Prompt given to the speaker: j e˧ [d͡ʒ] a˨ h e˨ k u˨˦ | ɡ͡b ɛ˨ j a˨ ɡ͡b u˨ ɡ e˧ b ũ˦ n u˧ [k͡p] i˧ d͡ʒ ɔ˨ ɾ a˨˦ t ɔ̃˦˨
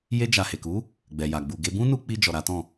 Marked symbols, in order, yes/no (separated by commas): yes, yes